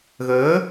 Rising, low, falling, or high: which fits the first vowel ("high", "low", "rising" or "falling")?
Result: rising